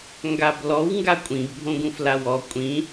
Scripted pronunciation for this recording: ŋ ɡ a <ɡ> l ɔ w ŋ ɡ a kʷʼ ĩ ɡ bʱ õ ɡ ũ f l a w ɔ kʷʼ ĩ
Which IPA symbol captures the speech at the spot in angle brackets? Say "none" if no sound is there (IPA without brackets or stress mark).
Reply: b